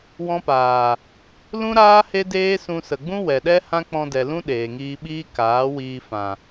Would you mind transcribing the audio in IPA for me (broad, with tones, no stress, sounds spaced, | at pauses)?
w ɔ̃˧ p aː˨ | l ũ˦ ɾ aː˦ h e˦ d eː˦ s ũ˧ s ə˨ ɡ͡b ũ˦ w ɛ˨ ɗ ɛ˦ h ã˦ k͡p ɔ̃˧ d ɛ˨ l ũ˦ ɗ eː˨ ŋ iː˧ ɓ iː˦ k aː˨˦ w iː˧ f ã˨